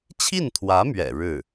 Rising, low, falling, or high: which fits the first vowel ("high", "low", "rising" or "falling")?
falling